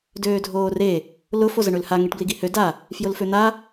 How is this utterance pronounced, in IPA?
d øː dʱ oː r e | l ʊ f o z ə ɳ ø l h a ŋ e ʈ b l i ɡ i h ø d a | f j ʊ l f ø n̪ a

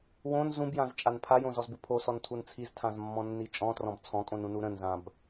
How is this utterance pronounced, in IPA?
w õ n z ũ b j ã z t͡ʃʼ a n pʰ a j õ z ɔ z b u pʰ o s ɔ n tʰ u n t͡sʰ i z tʰ ã z mː ɔ̃ nː i t͡ʃʼ ɔ̃ t r ɔ̃ b t͡sʰ ɔ̃ kʼ õ n ũ n u ɾ ə̃ n z ã b

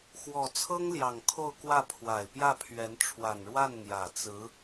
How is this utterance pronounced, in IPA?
x w ɔ˨˩ t͡sʰ ɤ˥ ŋ l j ɑ˨˩ ŋ kʰ o˥˧ ʊ̯ k w ä˥˩ pʰ w a˨˩ ɪ̯ p j ä˥˩ pʰ ɥ ɛ˧˥ n ʈ͡ʂʰ w a˨˩ n ɻ w a˥˩ n n̪ j ä˨˩ t͡s ɹ̩˧˥

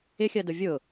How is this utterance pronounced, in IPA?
ɪ xʲ ɜ d ʊ vʲ ʊ

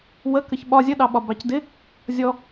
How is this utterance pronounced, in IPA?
w ə k ə ç ɓ ɒ zʲ ə ɗ ɑ ɓ ɒ b ɑ c d ɪ | zʲ ɔ

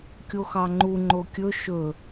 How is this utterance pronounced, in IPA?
kʲ o x ɑ ŋ͡ǃ u ŋ͡ǃ o kʲ ɵ ʃ ɵ

